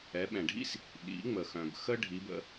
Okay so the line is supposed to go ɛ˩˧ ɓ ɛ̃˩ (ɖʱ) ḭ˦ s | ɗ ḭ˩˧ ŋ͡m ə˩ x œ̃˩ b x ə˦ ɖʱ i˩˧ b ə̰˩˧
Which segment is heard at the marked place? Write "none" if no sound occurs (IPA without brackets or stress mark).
ɖʱ